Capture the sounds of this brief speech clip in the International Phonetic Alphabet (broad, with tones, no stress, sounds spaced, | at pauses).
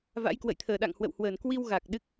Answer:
v a̰˧˥ j k w ə̰˧˨ j t̪ʰ əː˧˩ ɗ a̰˧˨ ŋ h w ə̰˧˨ w h w əː˧˩ n k w i˧ w ɣ a˨˩ k̚ ɗ ɨ˦˥ k̚